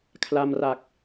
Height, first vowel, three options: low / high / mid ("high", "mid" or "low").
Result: low